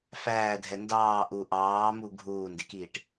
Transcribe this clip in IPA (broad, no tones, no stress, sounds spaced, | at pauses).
f æː dʱ ɛ n d ɑː ʔ u ʔ ɑː m u ɡʱ uː n d ɪ k iː ʈ